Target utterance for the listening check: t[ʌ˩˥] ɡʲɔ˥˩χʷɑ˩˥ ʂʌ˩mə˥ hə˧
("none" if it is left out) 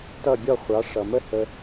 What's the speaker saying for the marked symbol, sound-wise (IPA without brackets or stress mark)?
ʌ˥˩